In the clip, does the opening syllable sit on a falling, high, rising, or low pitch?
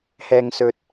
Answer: low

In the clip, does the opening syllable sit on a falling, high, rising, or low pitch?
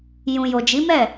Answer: low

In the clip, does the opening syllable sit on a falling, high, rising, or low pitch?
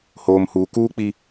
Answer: low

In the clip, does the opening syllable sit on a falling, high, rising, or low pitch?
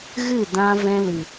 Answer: falling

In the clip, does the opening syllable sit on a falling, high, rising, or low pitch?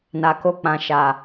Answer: low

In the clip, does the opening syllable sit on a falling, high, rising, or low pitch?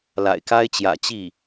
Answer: low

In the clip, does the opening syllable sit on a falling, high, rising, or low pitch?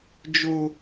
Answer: high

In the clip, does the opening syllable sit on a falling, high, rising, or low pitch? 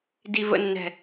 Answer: low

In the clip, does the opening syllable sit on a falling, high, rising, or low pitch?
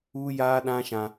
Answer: high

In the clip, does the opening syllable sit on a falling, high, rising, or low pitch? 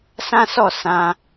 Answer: high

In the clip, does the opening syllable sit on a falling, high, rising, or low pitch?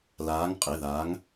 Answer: rising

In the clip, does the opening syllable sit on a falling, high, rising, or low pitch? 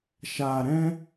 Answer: low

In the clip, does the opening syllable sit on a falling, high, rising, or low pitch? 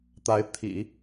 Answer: rising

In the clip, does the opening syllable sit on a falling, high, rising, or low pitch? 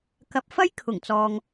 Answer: low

